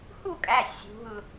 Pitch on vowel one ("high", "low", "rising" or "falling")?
falling